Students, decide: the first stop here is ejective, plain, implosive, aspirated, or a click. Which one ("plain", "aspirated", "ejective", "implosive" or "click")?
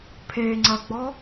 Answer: aspirated